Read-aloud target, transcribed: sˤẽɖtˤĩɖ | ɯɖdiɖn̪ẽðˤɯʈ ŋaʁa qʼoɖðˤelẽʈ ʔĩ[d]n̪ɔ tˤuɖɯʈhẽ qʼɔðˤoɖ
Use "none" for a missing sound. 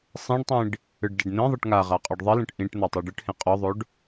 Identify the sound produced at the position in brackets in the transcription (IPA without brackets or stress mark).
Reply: ʈ